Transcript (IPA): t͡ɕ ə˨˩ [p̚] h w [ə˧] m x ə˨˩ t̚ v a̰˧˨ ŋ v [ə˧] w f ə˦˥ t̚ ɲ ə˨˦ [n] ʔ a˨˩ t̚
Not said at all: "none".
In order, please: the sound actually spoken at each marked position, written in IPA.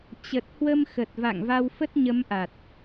t̚, ə˧, a˧, m

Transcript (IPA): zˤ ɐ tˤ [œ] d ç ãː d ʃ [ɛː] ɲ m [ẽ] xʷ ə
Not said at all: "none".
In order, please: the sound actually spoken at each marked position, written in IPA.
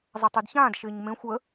œ, ɪː, ẽ

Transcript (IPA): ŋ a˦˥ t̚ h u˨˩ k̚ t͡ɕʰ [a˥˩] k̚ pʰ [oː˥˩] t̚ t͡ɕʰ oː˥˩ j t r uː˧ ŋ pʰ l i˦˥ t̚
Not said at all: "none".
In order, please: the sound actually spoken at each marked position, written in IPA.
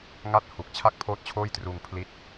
a˥˩, oː˥˩

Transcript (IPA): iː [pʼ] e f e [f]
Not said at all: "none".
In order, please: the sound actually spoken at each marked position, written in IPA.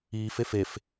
f, f

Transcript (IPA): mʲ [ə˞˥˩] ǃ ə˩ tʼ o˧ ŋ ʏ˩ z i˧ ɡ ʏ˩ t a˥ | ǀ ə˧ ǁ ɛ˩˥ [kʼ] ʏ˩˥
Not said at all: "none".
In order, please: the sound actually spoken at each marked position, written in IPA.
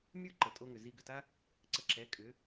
ə˞˥, kʼ

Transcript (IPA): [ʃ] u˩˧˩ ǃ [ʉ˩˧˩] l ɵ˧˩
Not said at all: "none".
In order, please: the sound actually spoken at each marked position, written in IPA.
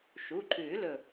ʃ, ʉ˨˩˦

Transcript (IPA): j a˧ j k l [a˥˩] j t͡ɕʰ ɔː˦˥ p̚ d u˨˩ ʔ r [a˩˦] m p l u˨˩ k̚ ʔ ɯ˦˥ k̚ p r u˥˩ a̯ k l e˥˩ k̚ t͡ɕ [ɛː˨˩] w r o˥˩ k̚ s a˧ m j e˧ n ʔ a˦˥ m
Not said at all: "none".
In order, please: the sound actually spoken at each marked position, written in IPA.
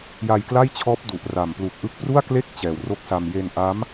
a˥˩, a˨˩, ɛː˨˩

